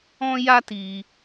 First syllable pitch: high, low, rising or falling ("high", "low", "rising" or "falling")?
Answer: high